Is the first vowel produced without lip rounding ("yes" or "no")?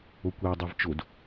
no